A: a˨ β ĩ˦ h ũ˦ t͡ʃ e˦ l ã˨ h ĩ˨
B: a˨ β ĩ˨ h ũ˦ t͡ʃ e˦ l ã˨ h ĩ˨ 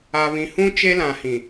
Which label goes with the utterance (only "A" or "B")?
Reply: B